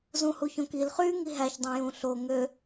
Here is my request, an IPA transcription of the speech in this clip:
z ũ h u ç õ k i l χ y ŋ i ɦ æ ç dˤ õ j ũ ɬ o ŋ ø

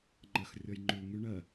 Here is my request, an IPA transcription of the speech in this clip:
ŋ͡ǃ ɜ x rʲ ɔ j ŋ͡ǃ ʉ ŋ y ɳ ɜ

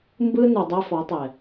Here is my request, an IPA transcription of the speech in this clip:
m b ɯ˦ n u˨ dˤ ɛ˦ f ɔ˨˦ tˤ ɛ˨

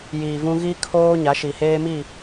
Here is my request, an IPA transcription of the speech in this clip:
j iː˨ v ũ˦ ɣ i˦ kʰ oː˦ ɲ a˨˦ ʃ i˨ h eː˦ m i˦˨

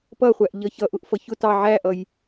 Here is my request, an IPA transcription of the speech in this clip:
p ʌ χʷ æ ʔ ʎ ʌ ç ʌ ʔ ʊ ʔ f ʌ ç ʊ t ɑ ʕ æ ʔ ʌ j

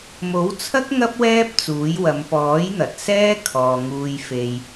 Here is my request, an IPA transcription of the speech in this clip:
m o˨˥ w t͡sʰ ɐ˥ k̚ ŋ ɐ˥ p̚ w ɛː˥ p̚ t͡s uː˨˥ j w ɐ˨˧ m p ɔː˨˥ j n̪ ɐ˨ t̚ s ɛː˥ kʰ ɔː˨ ŋ uː˧ j f e˧ j

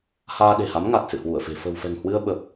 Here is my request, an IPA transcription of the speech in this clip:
h aː˧ ɗ e̤˨˩ h a˨˦ m ŋ a˨˩ t̚ s ɨ̰˧˨ h w u˧˩ ə̯ f e̤˨˩ f ə̤˨˩ w f ɛ̤˨˩ ŋ h w ɨ˧ ə̯ ɓ ə˨˩ p̚

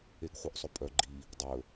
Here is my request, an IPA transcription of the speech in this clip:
e ɡ χʷ œ ʔ sˤ ɵ pʼ œ ɡ͡ǃ i | dˤ ɵ

